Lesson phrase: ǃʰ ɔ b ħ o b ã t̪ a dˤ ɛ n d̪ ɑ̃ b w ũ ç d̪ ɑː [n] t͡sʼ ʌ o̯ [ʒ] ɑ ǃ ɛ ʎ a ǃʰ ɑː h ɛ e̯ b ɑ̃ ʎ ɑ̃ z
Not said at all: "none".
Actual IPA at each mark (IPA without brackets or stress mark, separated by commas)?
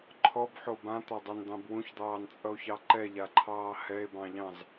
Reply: n, ç